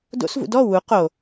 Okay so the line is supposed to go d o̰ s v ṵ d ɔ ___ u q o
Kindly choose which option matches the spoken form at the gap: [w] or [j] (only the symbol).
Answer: w